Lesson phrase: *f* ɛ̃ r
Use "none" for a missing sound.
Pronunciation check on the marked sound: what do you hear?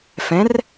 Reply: f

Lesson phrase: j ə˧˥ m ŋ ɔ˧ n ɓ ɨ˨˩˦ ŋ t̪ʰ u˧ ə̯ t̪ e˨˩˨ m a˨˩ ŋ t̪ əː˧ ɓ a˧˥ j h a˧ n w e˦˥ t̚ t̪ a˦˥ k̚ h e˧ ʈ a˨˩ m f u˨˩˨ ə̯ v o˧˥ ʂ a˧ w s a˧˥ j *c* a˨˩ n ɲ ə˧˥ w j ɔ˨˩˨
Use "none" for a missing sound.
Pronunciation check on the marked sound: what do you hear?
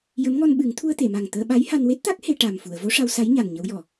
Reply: ɲ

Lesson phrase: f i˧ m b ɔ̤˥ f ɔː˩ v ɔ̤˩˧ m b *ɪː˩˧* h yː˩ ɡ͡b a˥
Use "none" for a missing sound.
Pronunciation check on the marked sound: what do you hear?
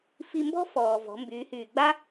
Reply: yː˩˧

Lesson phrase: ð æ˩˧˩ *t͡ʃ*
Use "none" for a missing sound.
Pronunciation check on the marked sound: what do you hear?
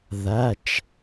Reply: t͡ʃ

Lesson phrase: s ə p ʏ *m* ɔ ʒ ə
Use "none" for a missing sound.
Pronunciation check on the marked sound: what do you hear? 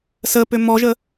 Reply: m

